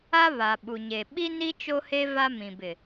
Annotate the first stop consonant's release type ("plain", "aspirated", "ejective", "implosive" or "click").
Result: implosive